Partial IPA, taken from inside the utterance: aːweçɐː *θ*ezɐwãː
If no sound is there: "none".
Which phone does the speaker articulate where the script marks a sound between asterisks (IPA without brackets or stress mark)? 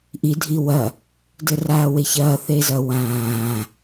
θ